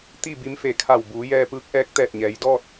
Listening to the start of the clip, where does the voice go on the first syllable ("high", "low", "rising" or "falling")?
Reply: falling